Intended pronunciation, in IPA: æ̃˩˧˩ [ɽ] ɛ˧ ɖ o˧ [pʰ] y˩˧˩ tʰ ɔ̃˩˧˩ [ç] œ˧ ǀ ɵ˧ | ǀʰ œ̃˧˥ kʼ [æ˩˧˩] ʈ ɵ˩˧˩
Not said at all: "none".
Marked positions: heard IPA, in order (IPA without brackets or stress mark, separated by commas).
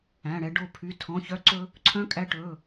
ɽ, pʰ, ç, æ˧